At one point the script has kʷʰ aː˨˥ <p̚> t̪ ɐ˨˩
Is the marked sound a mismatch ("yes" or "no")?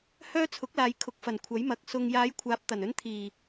no